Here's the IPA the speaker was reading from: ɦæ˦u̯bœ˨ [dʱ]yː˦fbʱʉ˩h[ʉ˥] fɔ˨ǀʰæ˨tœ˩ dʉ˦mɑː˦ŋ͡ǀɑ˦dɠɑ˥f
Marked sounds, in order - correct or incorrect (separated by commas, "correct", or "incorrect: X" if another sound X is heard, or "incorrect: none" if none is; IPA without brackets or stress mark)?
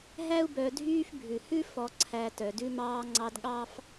correct, correct